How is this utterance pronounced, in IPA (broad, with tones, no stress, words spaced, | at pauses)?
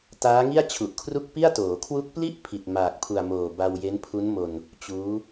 taː˦˥ŋi˥˩a̯ t͡ɕʰu˨˩ʔkʰru˥˩k̚pi˥˩a̯toː˩˦ kʰwu˦˥k̚pli˥˩ʔ pʰi˨˩t̚ maː˨˩k̚pʰu˨˩a̯moː˨˩ ba˧wje˦˥npʰu˦˥nmo˧n | t͡ɕuː˦˥